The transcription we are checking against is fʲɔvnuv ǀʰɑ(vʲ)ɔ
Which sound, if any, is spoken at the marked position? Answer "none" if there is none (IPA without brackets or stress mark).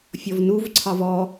v